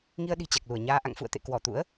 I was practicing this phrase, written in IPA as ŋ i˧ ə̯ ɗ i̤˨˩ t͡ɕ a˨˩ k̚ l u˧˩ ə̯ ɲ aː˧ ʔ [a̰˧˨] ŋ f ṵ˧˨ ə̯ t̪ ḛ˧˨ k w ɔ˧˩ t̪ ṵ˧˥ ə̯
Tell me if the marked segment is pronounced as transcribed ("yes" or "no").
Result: yes